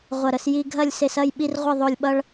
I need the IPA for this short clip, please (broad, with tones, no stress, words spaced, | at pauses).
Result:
ʁʷɐ˧˩ɾə˧sji˧ ɡʱɐ˥˧lʲse˧s ɐ˥˧j ɓi˥rʁʷə˥˧ ðˤo˧˩lʲɓʌ˧ɭ